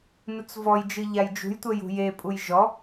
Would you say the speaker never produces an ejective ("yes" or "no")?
no